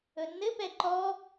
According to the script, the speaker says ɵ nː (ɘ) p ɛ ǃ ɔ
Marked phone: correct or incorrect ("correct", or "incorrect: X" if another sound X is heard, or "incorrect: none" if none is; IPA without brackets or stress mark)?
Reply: correct